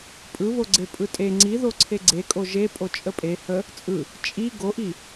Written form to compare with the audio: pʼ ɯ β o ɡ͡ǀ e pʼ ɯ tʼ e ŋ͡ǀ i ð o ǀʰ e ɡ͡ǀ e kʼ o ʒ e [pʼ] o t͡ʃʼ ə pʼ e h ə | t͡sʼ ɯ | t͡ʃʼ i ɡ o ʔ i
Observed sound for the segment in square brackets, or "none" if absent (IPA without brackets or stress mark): pʼ